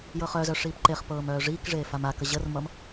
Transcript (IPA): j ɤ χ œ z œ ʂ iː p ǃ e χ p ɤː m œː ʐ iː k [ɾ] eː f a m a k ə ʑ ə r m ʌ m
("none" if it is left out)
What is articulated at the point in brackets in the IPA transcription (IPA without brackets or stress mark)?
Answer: ʐ